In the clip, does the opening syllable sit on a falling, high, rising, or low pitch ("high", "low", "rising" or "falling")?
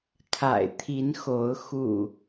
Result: low